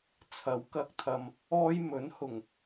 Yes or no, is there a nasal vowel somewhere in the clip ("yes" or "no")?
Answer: no